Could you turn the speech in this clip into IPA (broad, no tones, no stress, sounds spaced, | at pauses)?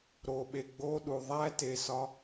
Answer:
ɾ o ɓ e ɡ͡b o ɗ u ðˤ æ t e s ɒ